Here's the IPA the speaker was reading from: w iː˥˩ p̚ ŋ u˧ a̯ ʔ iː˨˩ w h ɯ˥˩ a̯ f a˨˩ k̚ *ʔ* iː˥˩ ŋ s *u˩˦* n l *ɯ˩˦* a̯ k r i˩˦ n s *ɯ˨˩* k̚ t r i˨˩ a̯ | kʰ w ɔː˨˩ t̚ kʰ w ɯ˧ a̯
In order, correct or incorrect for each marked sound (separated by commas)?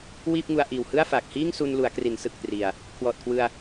incorrect, incorrect, incorrect, correct